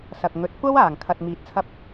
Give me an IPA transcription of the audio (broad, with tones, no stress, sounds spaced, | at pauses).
s ɐ˨ k̚ ŋ ɵ˨˥ t̚ kʷ ɐ˥ w aː˨˩ ŋ kʰ ɐ˨ t̚ m iː˨˥ t̚ t͡sʰ ɐ˧ p̚